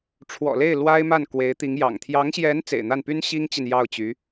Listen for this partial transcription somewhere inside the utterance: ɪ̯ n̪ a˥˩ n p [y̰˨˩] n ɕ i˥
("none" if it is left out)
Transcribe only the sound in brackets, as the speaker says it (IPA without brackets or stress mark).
y˥